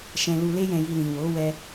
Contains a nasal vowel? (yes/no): yes